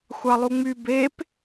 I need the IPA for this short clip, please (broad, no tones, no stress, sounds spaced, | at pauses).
xʷ ɑ lˠ u ŋ͡m y b e p